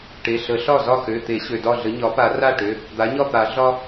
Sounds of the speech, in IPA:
ʈe˩˧˩ ɬə˨˩˦ɬɒ˥˩ zɒ˥˩xø˩˧˩t̪e˨˩˦ɕø˩ dɒ˥˩ɮə˩˥ ɲɒ˩˥pa˨˩˦ra˥˩ʈø˩˧˩ | d̪a˩˥ɲɒ˥˩t̪a˨˩˦ ɮɒ˦

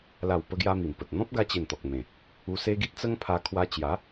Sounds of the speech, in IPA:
la˨˩wpə˧ɡja˧ mi˨˩mpə˨t̚ n̪ɔ̃˦p̚ɡa˧t͡ɕe˨˩n t̪ɔ˨k̚mẽ˨˩ | u˧se˦ɡi˦t̚ t͡sə˦ŋpʰa˧ kʰwa˧ t͡ɕja˨˦

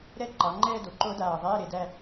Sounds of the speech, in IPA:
ɾɛ˥˧ǃɑ˩˧ŋ͡ǃɛː˥˧do˩˧ ǃo˦˥daː˧˩ ðˤɛː˧˥˧ɾe˩˧ dæ˥˧

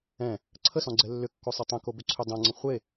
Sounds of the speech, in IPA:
ɛ̃ | ǀʰəsɔ̃ɡ͡ǀɛ lːʏkːosˤe tˤə̃kobʏǀʰʏ dˤõŋ͡ǀə̃ χʷe

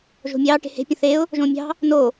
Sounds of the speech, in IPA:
ʒo̤mʲɑː ʈe̤he̤ pʲə̃θeʊ̯ | ʒõːmʲɑ̤ | no

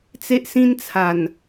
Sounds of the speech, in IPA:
t͡se˦ʔsĩ˦nt͡sʰa˨˩n

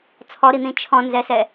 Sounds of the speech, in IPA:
t͡sʰɔɾin̪ĩ t͡ʃʰɔ̃nzɛsɛ

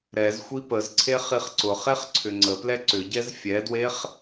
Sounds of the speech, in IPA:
ɾɛzxʷi pəzǀʰe χiχǀʊχeχ ǀʰʏŋ͡ǀəplɛ ǀʏɟɛz fʲɛdweχ

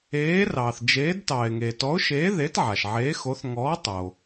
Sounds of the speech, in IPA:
eː˨˥rɑː˩θd͡ʒeː˨˥d tɑː˩ɪ̯ ŋeː˩tɔ˨˥ʊ̯ʃeː˨˥ ðe˨˥tʕa˩ʃ ʕeː˨˥xo˨˥θ ŋɔː˨˥tˤo˩

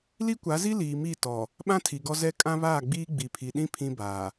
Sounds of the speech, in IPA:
li˦kʷa˨˦zi˦ liː˨mi˦˨ tɔ˨ | ɓã˦tʰi˨ɡɔ˦zɛ˦ kʼã˦βaː˦˨ɡ͡biː˦ ɡ͡bi˨pʰi˨ɗĩ˦ pʰĩ˦baː˨

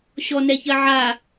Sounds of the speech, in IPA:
ɕɔnɛçɜ ʕa

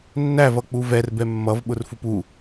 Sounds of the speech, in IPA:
nːævʌk͡pu vɛrbɛ mːʌvɓʊrfup u

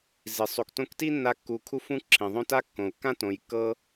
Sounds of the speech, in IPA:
zi˨ sˤo˨ktõ˧kti˦ nːa˦kːu˧ kʰu˧fũ˧ ǁʰĩ˨ ðˤõ˦ta˦kːõ˨u̯ kːã˦tõ˨j kːɤ˦

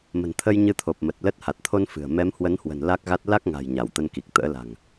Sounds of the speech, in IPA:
mə̤˨˩nt̪ʰə˧j ɲɨ˧t̪ʰo˨˩p̚ mə˨˩t̚lə˦˥t̚ ha˨˩t̚t̪ʰo˧n fɨ̤˨˩ə̯ mɛ˨˦mhwə˨˦nhwə̤˨˩n la˦˥k̚ɣa˦˥t̚ la˦˥k̚ŋa̤˨˩j ɲa˧˩wt̪ə˧nki˨˩k̚ t̪ə̰ː˧˥la̤˨˩ŋ

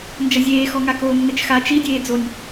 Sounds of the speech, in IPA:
nd͡ʒɐzʲeːxɔ ŋakoːnːɘt͡ʃxa t͡ʃi dʲeːd͡zonʲ

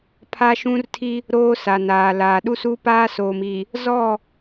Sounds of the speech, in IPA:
pʰa˦ʃũ˦rtʰi˦ | ɾoː˦ sa˨naː˨laː˨ ɗu˦su˦paː˦soː˨m i˨ | zɔ˦˨

